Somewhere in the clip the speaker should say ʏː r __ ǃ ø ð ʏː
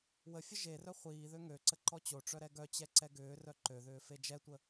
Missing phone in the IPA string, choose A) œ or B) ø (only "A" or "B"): A